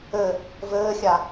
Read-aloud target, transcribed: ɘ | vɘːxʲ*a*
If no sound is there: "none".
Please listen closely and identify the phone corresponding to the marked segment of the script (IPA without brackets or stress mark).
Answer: a